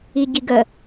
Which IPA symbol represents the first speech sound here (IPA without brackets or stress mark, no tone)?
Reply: i